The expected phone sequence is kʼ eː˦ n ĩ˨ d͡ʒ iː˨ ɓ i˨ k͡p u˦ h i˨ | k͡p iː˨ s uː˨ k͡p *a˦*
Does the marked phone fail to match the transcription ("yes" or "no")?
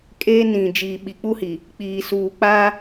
no